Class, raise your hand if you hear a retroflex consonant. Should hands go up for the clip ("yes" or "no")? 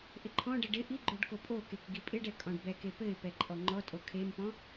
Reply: yes